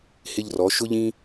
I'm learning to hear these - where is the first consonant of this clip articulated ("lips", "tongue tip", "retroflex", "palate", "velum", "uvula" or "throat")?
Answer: throat